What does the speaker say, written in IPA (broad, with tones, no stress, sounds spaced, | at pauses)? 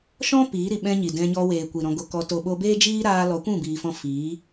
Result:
ʃ ɔ̃˦ p iː˨˦ ɾ i˨ ɓ ɛ̃˦ ɲ i˨ d ɛ̃˧ ɲ ɔ˧ w eː˨ kʷ i˨ ɾ ɔ̃˧ ɡ o˧ k ɔ˧ t o˨ ɓ o˧ b eː˦ d͡ʒ iː˦ ɾ aː˧ l ɔ˨˦ kʷ ũ˦˨ b iː˨ f ɔ̃˧ f iː˨˦